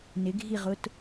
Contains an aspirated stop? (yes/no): no